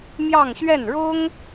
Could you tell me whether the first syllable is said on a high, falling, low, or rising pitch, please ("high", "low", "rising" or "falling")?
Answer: falling